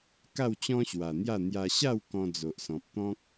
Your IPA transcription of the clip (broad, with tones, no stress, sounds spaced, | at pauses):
k a˥˧ w t͡ɕ ɔ̃˦ ɕ w a˨˩ n̪ j a˥˧ n̪ j a˧ ɕ a˥˧ w k ɔ̃˧ d͡z o˨ ʔ s ɔ̃˨ p̚ t̪ ɔ̃˦ k̚